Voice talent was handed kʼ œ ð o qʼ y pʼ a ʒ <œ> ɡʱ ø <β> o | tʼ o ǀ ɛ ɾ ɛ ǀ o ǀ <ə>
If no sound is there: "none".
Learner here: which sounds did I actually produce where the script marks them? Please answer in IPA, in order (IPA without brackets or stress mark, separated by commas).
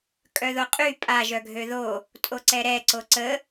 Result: œ, ð, ə